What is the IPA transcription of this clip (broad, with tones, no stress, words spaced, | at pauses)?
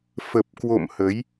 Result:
fə˨˩p̚kwo̰˧˨m hə˨˦j